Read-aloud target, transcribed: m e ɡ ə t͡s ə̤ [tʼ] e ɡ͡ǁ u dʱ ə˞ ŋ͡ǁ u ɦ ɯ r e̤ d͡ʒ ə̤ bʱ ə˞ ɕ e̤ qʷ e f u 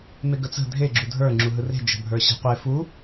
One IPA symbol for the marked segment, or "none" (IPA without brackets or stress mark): dʱ